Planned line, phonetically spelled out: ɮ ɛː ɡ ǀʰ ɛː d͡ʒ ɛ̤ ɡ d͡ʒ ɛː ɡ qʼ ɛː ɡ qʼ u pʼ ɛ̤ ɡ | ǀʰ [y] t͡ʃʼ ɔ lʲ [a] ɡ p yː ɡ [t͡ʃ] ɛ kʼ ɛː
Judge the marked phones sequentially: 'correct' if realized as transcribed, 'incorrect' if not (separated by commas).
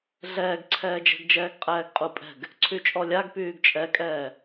correct, correct, incorrect